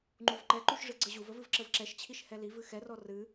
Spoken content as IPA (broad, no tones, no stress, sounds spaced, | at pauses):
ŋ͡ǃ u v ǃ ɛ ǃ u ʃ ʐ ɨ ɡ͡ǀ ə ʑ u v ə v ɨ v ǁ ə v ǁ ɛ ʃ t͡ɕʰ i ʃ h ɛ l i v ɨ x ɛ r ɔ r ɨ